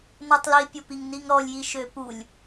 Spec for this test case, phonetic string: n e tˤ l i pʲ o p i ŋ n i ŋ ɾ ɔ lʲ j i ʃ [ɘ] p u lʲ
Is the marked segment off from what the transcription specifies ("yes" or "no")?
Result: yes